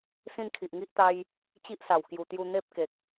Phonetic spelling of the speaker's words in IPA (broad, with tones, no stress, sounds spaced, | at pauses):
s ĩ˥˧ n kʰ i˨ ʔ ŋ i˦ ʔ t̪ a˦ j | t͡ɕ i˦ ʔ s a˨˩ w k j u˨˩ t̪ j u˧ n̪ e˦ p̚ k e˨ k̚